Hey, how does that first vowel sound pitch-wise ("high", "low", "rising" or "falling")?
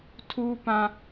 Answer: high